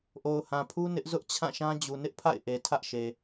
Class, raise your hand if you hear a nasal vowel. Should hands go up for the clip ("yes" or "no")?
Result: yes